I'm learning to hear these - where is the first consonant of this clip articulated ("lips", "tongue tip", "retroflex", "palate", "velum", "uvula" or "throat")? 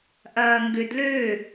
throat